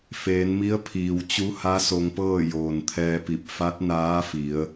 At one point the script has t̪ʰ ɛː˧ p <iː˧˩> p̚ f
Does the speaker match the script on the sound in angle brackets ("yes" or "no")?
no